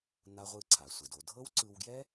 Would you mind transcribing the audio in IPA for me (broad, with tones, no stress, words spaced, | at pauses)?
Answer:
na˧ʁʷɯ˧ ǀʰa˩sʷɛ˩do˧ dʱɤ˥wǀɯ˧wɡjɛ˥